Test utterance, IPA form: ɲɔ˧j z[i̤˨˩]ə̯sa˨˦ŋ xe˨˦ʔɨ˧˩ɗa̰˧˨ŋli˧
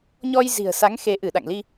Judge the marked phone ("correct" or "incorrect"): correct